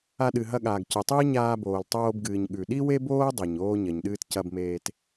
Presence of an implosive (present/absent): present